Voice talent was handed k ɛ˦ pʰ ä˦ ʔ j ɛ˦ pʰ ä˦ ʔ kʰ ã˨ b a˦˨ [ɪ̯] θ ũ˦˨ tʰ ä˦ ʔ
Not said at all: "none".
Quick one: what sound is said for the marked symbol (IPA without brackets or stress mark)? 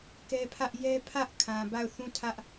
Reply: ʊ̯